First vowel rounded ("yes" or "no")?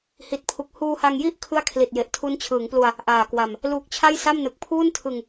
no